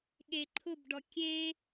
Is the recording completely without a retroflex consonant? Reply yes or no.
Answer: no